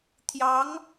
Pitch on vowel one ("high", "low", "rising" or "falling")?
rising